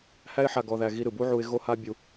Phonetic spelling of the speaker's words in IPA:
h æ˦ ɪ̯ ħ a˧ ɡ ɔ˧ ð æ˧ ɣ i˧ ɾ ɯ˨ b u˦ ʕ u˧ ɪ̯ ɣ o˦ h a˦ bʲ u˧

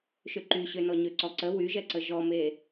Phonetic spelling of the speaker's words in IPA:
ʃ ø ǃ y ɕ ø n ɔ ɲ ø ǀ ɔ ǀ ə w y ʒ ɛ ǀ ə ʒ ɔ m e

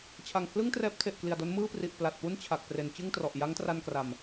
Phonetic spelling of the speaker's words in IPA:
t͡ɕʰ a˨˩ ŋ pʰ l ɯ˥˩ ŋ t r ɛː˦˥ p̚ tʰ e˨˩ ʔ k l i˨˩ a̯ d o˦˥ n m ɯː˥˩ p r i˨˩ ʔ p l a˨˩ t̚ p u˥˩ n t͡ɕʰ a˨˩ k̚ p r e˩˦ n t͡ɕ ɯ˥˩ ŋ t r ɔ˨˩ ʔ j a˦˥ ŋ t r a˧ n k r a˨˩ m

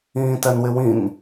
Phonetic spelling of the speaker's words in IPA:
ĩː t ɛ n w ɪ w ĩ n

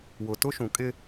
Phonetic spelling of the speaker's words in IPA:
w ʊ˨ t ʊ˦ ʃ ũ˨ kʼ ɪ˦

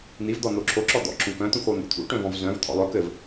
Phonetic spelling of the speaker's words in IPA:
n̪ i v d̪ ɔ n̪ o ǁʰ o ǁ ɔ d̪ ɔ̰ ǁ ũ k œ̃ t̪ ũ x o n̪ ṵ t̪ʰ ṵ ʈ œ̃ v ɔ̃ v z œ̃ v t̪ʰ ɔ̰ lˠ œ k ɘ v

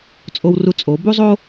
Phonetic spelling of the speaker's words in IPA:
t͡sʼ o˧ w r u˧ t͡sʼ o˩˧ b u˥ zˤ o˥

